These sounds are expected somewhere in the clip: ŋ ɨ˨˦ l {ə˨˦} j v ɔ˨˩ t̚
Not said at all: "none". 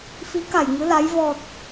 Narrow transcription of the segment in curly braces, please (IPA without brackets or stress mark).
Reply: a˨˦